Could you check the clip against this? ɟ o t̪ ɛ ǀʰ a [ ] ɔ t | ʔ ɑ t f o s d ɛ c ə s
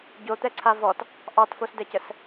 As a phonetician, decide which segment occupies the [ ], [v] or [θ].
v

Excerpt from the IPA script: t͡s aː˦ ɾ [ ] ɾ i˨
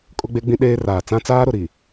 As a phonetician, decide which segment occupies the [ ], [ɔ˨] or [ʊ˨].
ʊ˨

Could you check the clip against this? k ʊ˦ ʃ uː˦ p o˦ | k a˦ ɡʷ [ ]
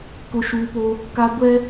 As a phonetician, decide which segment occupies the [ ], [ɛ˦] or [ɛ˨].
ɛ˦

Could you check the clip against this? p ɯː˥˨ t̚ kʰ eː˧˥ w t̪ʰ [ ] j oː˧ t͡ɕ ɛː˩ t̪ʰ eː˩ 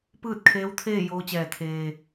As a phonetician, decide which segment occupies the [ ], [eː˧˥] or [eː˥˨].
eː˥˨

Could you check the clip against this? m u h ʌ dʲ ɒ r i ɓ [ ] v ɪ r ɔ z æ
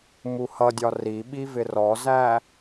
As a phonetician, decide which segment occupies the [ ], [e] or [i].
i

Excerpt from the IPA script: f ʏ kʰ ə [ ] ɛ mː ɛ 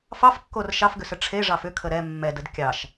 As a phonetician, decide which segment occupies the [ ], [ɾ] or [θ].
ɾ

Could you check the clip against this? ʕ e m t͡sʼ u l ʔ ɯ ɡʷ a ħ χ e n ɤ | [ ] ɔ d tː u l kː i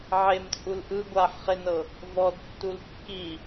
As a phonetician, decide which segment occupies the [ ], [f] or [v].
v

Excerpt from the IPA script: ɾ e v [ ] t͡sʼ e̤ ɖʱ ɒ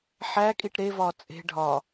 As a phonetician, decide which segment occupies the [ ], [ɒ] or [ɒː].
ɒː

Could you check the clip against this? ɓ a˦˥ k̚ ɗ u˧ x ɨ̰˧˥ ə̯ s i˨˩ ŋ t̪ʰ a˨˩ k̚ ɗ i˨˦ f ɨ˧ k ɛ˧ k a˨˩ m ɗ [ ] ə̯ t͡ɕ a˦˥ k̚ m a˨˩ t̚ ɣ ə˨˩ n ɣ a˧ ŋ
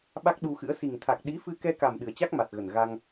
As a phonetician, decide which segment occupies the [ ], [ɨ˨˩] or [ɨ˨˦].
ɨ˨˩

